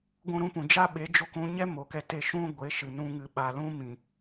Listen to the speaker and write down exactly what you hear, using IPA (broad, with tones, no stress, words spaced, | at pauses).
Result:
ɡʷũ˧ɾũ˧pũ˨ d͡ʒa˦ɓe˨˦d͡ʒo˧k ũ˧ɲɛ˦ mo˨kɛ˧te˧ʃũ˦ ɡʷe˨˦ʃɨ˨ nũ˧ ŋɨ˨ɓa˨lũ˦ mĩ˨